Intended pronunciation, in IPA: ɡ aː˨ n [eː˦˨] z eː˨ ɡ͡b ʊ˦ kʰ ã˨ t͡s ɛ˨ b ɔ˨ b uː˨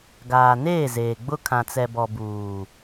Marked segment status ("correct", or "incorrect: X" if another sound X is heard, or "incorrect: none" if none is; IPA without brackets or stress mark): correct